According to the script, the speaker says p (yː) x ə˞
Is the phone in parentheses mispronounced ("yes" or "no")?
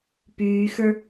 no